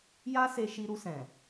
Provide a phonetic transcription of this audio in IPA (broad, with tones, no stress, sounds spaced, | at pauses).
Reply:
j a˦ s e˧ ʃ i˧ ɾ u˧ s ɛ̃˨